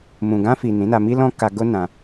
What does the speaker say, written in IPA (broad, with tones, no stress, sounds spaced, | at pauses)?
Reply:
m ũ˨ ɡ ã˧ f i˨ n ĩ˨˦ n a˧ m i˦ l ɔ̃˦ k a˧ ɡ o˦ n ã˧